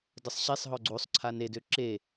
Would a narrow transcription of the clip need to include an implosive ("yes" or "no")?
no